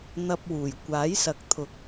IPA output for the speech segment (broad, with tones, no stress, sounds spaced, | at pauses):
n̪ ɐ˧ p̚ w uː˨˩ j kʷ aː˨˥ j s ɐ˨˥ k̚ t̪ʰ ʊ˨˥ k̚